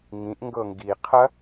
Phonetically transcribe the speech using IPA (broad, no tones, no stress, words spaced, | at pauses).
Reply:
ŋĩʔ ŋɡɤŋɡi qʰɐ